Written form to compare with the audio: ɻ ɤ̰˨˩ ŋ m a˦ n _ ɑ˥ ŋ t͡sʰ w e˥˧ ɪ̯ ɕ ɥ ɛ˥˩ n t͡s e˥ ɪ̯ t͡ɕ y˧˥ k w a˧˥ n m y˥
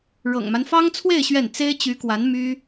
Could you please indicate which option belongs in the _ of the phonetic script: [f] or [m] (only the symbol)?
f